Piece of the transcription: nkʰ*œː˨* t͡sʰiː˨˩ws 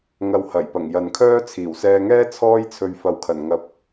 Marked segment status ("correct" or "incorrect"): incorrect